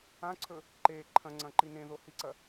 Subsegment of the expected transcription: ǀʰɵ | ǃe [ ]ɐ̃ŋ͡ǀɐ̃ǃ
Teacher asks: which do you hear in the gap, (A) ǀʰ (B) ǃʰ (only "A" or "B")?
B